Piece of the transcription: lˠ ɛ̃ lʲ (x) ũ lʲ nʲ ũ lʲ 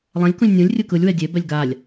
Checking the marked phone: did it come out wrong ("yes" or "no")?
yes